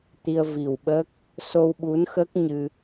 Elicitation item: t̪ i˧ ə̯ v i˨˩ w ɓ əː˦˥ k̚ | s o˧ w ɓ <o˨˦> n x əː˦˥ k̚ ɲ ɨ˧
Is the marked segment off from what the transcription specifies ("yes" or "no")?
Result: yes